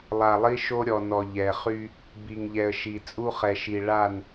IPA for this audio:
lˠ a˨ lˠ i˦ ʃ o˦ ɾʲ ɔ˨ n ɔ˨ ʎ ɛ˨ χ y˦ | b i˨ ŋ ʎ ɛ˨ ə̯ ʃ i˨ t͡sʼ u˦ χ ɛ˨ ʃ i˨ ɭ a˦˨ n

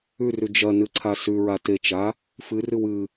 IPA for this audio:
ʉ r ʉ d͡ʒ ɐ n ɨ ǀʰ a s ʉ ɹ a t e t͡ʃ a | f ɨ r ɨ w ɨ

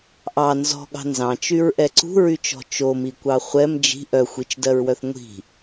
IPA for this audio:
ʔ ɑ n z ɔ̤ ɠ ɑ̤ n z ɑ̃ t͡ʃ y ɹ ʔ ɛ ǀ ṳ ɹ y t͡ʃ ɔ̤ t͡ʃ o m i kʷ ɑ χʷ ɛ m d͡ʒ i̤ ʔ œ xʷ i t͡ʃ d ɜ ɹ w œ θ ŋʷ i̤

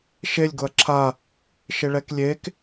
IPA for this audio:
ʃ e lʲ ɡ ʊ ɐ̯ ǁʰ a | ʃ ɪ ɭ ɛ k lʲ e k

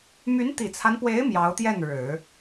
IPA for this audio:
m y˧˥ n t̪ i˨˩ t͡sʰ a˦ n p w e˧˥ ɪ̯ m j ɑ˧˥ ʊ̯ t̪ j ɛ˥˩ n ɻ ɻ̩˨˩˦

